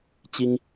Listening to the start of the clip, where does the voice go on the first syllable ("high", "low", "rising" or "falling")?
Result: high